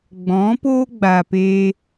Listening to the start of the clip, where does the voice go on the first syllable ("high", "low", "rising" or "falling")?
rising